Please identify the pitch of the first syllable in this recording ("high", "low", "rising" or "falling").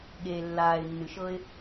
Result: low